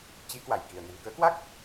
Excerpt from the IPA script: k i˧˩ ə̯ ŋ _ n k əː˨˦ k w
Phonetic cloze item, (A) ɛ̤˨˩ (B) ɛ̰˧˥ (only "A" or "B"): A